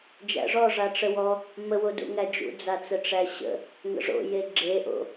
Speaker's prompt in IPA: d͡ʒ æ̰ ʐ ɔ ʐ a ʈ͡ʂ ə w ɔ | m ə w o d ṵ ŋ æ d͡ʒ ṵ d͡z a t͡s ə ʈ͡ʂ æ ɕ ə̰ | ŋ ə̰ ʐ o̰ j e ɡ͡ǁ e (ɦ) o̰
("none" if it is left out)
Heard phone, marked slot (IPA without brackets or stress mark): ʔ